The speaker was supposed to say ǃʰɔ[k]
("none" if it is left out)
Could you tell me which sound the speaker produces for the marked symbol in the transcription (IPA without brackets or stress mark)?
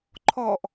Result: ʔ